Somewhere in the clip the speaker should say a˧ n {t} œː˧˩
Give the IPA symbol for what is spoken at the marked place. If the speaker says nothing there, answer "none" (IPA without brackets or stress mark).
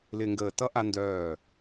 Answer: d